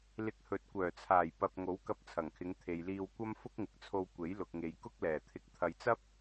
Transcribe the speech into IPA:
l ɪ˧ k̚ h ɵ˨˥ t̚ kʷ œː˨˩ t͡sʰ aː˨˩ j p ɐ˨ p̚ ŋ o˨˥ w k ɐ˧ p̚ t͡sʰ ɐ˨˩ ŋ kʰ ɪ˨˧ ŋ t̪ʰ e˨ j l iː˧ w kʷ ɐ˥ m f ʊ˥ k̚ ŋ ɪ˨˥ k̚ t͡sʰ o˧ w kʷ e˨˥ j l ʊ˨ k̚ ŋ e˨ j k ʊ˥ k̚ l ɛː˨˩ t̪ʰ ɪ˧ k̚ t̪ʰ ɐ˧ j t͡s ɐ˥ p̚

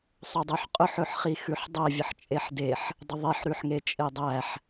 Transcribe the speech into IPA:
sˤ ʉ dˤ u ħ qʼ ʊ ħ ɵ ħ χ i x ʉ ħ dˤ æ vʲ ə ħ t͡ʃʼ e ħ d e ħ | dˤ ə ðˤ e ħ ɾ ʉ ħ ŋ e t͡ʃʼ e dˤ æ ħ

